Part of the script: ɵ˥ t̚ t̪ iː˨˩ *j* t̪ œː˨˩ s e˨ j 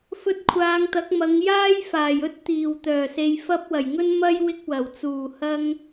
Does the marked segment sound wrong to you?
yes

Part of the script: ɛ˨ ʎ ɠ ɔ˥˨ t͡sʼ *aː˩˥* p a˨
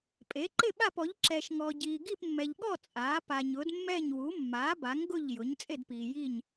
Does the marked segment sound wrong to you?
no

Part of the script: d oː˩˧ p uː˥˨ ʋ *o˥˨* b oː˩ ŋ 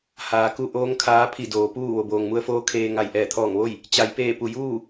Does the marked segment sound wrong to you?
yes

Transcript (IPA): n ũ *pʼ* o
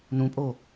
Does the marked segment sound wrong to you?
no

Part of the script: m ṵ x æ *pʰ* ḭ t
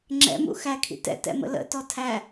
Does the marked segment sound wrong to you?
yes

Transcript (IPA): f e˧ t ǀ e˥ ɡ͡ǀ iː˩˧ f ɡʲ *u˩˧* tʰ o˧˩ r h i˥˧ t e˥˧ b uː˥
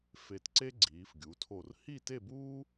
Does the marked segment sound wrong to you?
no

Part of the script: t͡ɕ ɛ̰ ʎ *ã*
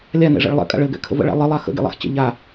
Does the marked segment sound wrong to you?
yes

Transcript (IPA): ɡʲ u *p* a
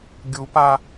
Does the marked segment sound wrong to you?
no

